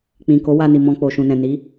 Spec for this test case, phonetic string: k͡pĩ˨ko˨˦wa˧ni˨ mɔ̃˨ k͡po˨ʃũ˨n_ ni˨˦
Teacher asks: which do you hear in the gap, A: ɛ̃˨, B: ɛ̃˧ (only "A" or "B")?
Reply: A